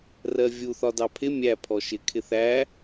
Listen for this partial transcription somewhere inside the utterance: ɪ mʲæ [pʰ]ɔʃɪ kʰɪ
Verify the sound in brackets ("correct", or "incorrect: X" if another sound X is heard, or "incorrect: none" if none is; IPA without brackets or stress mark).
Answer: correct